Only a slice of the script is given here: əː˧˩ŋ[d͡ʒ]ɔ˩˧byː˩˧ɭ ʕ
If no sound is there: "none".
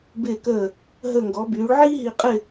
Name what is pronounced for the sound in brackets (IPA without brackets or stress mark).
ɡ